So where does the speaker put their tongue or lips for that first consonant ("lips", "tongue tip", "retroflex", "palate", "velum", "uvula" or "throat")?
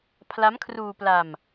lips